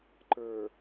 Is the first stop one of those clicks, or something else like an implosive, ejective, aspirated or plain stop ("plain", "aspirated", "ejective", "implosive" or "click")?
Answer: click